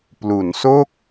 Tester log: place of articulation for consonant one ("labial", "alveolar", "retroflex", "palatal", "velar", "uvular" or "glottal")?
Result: labial